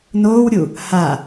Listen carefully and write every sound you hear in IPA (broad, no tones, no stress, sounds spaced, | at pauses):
n oː w ɾʲ u | h a